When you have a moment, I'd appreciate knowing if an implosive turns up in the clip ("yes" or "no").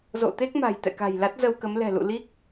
no